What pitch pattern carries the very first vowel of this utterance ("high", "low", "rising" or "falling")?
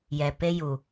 low